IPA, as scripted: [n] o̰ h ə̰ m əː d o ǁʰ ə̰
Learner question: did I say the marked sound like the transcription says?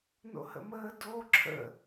yes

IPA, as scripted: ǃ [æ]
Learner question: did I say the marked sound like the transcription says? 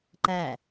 yes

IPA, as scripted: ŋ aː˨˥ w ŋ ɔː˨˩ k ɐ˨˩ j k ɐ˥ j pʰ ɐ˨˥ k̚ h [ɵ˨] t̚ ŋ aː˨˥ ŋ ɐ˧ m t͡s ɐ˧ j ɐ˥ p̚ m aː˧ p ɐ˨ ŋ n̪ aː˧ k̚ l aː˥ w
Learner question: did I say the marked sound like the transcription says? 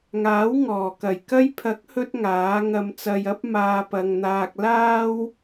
no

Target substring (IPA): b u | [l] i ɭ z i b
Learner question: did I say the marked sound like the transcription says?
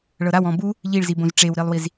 no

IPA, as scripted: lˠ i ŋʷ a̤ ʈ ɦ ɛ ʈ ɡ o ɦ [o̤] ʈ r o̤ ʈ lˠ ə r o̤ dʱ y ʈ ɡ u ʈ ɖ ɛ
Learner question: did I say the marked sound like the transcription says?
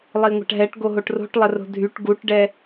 no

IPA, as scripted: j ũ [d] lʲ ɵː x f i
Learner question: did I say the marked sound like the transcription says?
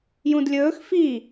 yes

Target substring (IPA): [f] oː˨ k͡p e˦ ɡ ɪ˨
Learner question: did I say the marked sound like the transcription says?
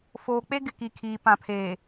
yes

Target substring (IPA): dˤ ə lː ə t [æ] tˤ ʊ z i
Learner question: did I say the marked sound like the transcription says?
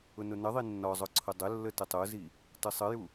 no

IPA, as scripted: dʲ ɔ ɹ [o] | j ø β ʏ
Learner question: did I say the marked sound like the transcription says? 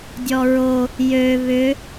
yes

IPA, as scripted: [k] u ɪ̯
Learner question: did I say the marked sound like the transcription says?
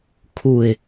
no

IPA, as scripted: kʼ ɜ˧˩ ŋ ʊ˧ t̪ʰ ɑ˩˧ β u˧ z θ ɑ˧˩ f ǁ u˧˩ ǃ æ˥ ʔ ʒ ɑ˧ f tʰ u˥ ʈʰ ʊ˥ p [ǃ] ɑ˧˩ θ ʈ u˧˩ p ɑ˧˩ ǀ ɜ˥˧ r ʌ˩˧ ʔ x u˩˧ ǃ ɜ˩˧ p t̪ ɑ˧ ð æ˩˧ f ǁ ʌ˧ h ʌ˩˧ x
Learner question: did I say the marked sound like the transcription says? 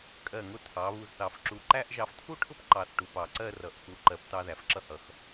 yes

